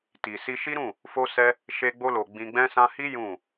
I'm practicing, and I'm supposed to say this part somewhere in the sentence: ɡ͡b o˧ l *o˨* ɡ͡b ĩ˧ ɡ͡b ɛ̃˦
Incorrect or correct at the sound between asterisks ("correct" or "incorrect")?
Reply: correct